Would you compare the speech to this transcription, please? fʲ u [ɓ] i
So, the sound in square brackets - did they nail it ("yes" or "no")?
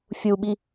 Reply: yes